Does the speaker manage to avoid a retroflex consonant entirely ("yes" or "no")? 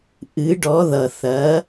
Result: no